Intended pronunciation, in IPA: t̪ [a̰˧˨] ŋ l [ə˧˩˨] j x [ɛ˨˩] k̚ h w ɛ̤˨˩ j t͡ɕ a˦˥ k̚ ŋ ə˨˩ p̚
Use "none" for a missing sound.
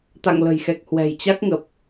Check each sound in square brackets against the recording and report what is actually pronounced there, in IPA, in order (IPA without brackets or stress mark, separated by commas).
a̰˧˨, ə̤˨˩, ɛ˨˩